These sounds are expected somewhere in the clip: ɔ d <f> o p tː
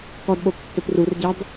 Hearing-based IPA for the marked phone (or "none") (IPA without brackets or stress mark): ɓ